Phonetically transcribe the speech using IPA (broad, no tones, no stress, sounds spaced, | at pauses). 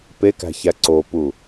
p e k æ̤ ç æ ǀ o p u